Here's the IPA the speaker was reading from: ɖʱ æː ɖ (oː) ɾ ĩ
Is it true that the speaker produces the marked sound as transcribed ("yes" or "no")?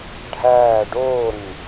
yes